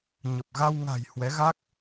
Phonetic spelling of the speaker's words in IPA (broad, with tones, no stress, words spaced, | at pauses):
ɲə˨˩p̚ɣa˧wŋa̤˨˩j hwɛ˨˦ɣa˦˥k̚